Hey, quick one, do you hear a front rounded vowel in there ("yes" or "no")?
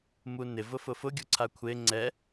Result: no